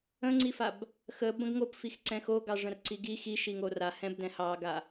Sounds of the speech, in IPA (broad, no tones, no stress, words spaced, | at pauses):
ə̃ŋ͡ǀifab | xə bə̃ɡŋop fixǀɛ̃xo ɡɑʐə̃rǀiɡi xiʃi ŋorahɛ̃b dɛ̃hɑɡa